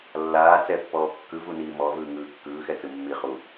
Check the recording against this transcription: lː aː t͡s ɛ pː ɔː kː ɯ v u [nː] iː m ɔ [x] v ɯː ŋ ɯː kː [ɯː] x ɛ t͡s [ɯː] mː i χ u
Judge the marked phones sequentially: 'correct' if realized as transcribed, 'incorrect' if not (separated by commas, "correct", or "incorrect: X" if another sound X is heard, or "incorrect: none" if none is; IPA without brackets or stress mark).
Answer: incorrect: n, incorrect: none, correct, incorrect: ɯ